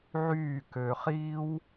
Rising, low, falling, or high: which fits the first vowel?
falling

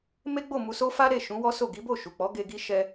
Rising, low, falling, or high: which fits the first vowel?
high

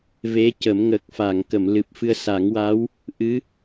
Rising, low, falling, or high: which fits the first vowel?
rising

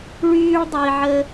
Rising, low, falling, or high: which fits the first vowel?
high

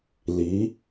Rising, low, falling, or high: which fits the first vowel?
rising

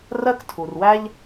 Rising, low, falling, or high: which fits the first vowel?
high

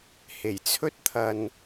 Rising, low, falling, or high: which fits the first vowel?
low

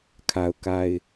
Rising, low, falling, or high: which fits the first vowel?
low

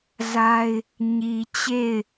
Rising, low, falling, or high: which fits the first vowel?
high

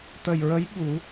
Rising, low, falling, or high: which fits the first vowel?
low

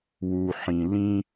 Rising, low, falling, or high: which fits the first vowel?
low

